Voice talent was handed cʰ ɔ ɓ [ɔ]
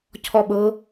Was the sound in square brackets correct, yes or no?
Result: no